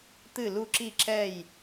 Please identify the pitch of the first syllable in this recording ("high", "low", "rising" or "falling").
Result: falling